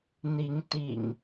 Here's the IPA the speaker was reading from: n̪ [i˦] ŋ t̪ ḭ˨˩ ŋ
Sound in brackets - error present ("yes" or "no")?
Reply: yes